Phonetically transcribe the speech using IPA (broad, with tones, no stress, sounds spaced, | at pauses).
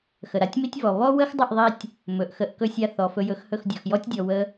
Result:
x ə˩ ɾ a˩˥ tʲ m i˥ tʲ v ɔ˩ β ɔ˥ w ə˥ x dˤ ə˥˩ ʔ ðˤ i˧ tʲ | m ɵ˩ ʔ x ə˧ ʔ k ɵ˥ sʲ a˥˩ θ ɔ˩ f ɵ˧ j ɵ˩˥ x h ɵ˥˩ x dʲ ɔ˩ x j ɔ˥ tʲ dʲ ɔ˩ w ə˧